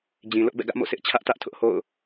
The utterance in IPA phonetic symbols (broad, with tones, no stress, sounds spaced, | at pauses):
d͡ʑ ĩ˨ l ʊ˦ ʔ b ɛ̰˦˨ ɡ ä˦ ʔ m o̰˦˨ s ɪ˦ ʔ t͡ɕʰ ä˦ ʔ t ä˦ ʔ tʰ ʊ˦ ʔ h o̰˦˨ ʊ̯